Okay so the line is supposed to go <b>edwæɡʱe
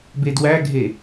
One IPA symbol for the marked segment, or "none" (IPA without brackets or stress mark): b